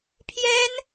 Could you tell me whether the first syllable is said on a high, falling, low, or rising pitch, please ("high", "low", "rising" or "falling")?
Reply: high